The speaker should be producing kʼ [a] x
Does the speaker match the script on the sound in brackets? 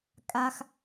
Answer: yes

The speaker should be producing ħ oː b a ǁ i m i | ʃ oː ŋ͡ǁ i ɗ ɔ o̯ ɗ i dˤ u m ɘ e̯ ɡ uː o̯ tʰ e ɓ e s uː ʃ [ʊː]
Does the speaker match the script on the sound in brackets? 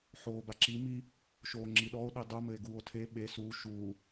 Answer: no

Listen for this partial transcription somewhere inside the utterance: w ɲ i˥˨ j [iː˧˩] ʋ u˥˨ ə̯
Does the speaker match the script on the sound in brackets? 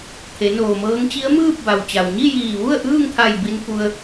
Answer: yes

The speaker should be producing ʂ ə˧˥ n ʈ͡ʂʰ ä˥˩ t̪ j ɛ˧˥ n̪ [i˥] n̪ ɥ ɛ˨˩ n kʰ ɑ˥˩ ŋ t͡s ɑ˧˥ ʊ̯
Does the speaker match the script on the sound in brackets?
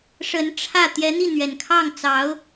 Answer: no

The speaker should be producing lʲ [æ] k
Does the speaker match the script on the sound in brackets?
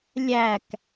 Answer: yes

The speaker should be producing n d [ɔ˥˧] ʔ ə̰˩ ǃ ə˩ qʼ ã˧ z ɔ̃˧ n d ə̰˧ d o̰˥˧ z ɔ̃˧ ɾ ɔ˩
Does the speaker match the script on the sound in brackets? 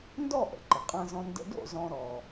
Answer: yes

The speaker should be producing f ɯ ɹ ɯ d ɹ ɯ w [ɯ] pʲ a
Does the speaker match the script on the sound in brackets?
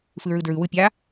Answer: yes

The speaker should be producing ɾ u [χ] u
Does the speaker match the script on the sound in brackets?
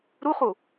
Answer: yes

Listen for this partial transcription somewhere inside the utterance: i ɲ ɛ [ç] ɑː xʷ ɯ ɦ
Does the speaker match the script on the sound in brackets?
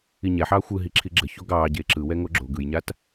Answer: no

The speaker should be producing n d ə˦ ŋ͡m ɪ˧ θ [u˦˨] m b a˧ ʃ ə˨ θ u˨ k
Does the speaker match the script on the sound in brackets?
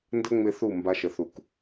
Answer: yes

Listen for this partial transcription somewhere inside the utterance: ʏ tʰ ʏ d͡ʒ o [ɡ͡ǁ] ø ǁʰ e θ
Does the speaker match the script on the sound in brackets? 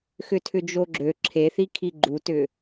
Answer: yes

